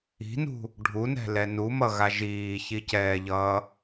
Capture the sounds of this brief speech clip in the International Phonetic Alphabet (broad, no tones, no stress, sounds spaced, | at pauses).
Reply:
i̤ n ṳ | ɖʱ u n ɛ̤ l ɛ n u m ʌ ɣ a ʒ iː ç i c ɛː ʎ ʌː